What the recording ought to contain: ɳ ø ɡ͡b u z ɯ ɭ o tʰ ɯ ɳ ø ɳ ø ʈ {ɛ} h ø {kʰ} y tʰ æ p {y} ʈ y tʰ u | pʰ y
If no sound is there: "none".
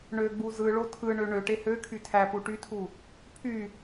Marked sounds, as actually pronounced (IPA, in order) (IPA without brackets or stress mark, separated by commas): e, kʰ, u